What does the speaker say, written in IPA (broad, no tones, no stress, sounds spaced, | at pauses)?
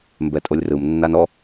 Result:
m b ɛ tʼ o lʲ r ɯ m nː a n ɔ